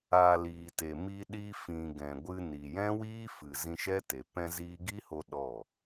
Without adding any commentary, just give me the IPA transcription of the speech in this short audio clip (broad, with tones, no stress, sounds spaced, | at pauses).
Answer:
a˨ l iː˨ t e˨ m i˧ ɗ i˧ f ĩ˨ ɡ ɛ̃˨ ɡʷ ɨ˧ n i˨ j ɛ̃˦ w iː˦ f ɨ˨ z ĩ˧ ʃ ɛ˦ t e˨ p ɛ̃˧ z iː˧ ɡ i˦ h o˧ ɗ ɔ˦˨